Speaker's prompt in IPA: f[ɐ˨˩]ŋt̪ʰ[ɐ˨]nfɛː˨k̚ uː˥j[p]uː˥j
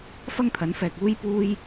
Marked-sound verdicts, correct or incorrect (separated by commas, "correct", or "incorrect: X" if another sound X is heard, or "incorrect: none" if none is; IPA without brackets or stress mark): incorrect: ɐ˥, incorrect: ɐ˨˥, correct